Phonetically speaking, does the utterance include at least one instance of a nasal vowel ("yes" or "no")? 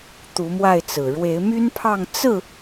no